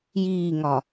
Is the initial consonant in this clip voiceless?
no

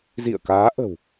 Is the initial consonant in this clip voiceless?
no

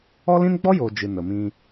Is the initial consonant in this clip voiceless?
no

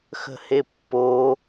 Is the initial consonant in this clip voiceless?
yes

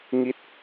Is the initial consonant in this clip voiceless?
no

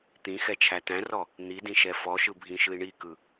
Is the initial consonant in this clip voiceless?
yes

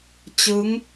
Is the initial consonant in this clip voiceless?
yes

